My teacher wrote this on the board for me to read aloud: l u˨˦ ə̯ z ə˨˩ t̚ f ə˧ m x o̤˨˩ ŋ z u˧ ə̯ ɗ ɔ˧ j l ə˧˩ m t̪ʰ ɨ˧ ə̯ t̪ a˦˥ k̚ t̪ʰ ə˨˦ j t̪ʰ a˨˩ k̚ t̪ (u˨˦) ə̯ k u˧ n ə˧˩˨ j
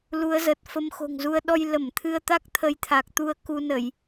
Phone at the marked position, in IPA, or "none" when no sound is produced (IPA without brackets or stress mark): u˧